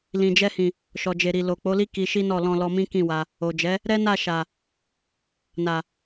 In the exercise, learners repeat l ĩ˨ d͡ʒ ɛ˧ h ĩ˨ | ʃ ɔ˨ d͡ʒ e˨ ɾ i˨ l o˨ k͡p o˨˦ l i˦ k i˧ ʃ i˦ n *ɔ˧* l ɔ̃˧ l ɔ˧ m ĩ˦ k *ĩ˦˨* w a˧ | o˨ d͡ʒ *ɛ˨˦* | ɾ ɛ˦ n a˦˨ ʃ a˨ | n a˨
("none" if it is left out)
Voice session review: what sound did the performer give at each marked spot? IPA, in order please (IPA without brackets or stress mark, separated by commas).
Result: ɔ˦˨, ĩ˦˨, ɛ˨˦